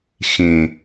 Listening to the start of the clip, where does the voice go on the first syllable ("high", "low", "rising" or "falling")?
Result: low